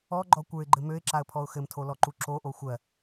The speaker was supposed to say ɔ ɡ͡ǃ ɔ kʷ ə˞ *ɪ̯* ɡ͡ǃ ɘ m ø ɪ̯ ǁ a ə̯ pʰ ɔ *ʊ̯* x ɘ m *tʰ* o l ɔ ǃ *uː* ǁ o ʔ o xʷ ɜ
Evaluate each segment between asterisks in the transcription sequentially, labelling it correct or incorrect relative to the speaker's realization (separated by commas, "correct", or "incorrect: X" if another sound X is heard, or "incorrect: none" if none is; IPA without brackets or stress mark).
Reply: correct, correct, correct, incorrect: u